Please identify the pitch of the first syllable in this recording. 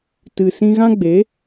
low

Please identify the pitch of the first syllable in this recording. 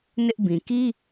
high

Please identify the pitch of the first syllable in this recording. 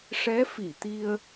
rising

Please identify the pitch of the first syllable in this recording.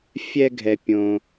high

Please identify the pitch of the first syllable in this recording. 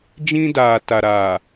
high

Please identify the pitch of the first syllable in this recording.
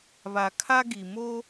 low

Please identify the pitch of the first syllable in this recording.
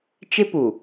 high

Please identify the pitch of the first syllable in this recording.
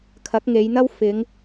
rising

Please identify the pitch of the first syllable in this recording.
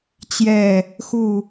falling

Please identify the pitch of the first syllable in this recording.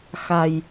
low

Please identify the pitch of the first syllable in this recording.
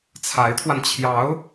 rising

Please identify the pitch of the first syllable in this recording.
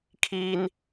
high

